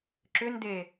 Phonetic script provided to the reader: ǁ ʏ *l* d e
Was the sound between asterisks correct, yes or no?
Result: no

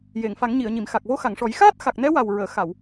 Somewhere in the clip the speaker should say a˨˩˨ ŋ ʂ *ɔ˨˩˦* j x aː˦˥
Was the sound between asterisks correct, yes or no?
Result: yes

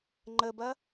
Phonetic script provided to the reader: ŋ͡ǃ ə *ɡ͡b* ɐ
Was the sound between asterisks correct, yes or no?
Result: no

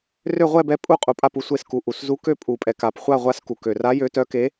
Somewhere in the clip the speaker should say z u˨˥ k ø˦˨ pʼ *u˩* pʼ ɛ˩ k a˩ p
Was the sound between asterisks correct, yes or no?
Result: yes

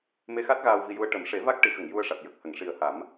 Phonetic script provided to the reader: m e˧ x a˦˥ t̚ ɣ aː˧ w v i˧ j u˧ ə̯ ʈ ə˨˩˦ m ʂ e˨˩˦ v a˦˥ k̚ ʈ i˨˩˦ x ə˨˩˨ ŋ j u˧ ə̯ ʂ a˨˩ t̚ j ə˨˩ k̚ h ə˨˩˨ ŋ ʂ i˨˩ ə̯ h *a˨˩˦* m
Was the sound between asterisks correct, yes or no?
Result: yes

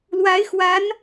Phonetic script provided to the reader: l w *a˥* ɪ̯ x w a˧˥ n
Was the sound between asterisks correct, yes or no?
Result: no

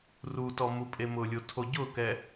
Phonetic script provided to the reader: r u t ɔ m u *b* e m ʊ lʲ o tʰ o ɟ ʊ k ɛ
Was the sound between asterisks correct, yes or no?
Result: no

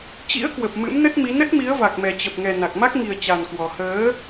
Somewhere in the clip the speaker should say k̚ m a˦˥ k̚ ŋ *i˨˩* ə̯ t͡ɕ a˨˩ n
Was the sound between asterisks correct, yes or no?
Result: yes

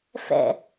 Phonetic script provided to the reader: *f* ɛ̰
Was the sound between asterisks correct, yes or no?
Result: yes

